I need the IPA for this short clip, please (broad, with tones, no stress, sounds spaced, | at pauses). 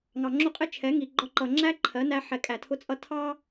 ŋ ɑ˨ ŋ͡ǁ ʊ˦˨ qʼ ɪ˦ t͡ʃʰ ɛ˨˦ ŋ i˨ ɡ͡ǃ ɒ˧ ǃ ʌ˨ ŋ͡ǁ æ˦ ǃʰ ɜ˨˦ n æ˧ ħ ɛ˨ kʼ æ˨ tʰ ʊ˧ t͡sʼ ʌ˧ tʰ ɑ˦